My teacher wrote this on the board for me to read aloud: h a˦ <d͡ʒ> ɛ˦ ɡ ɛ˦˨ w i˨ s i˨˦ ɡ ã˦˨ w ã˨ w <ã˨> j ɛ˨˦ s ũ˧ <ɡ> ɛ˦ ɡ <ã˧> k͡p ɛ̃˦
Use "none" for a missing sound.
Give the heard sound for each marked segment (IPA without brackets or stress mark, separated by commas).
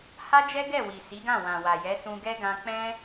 d͡ʒ, a˨, ɡ, ã˧